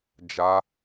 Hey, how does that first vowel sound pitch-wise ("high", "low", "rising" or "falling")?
high